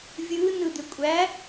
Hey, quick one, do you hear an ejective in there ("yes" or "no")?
yes